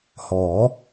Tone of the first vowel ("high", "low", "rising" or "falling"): rising